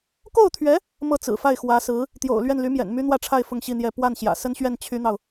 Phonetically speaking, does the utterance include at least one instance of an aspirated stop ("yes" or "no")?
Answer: yes